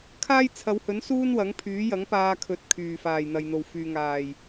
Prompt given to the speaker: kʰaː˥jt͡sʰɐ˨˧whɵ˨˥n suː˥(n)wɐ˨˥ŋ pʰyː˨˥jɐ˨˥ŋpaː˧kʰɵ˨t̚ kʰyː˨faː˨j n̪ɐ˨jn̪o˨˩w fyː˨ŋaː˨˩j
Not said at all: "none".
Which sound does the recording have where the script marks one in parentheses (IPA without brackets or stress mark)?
n